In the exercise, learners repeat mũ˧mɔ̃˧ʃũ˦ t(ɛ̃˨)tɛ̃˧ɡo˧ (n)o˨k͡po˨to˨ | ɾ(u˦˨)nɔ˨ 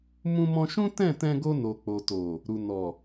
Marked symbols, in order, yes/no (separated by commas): no, yes, no